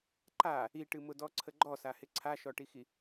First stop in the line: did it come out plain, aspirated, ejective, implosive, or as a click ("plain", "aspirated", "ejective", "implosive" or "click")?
click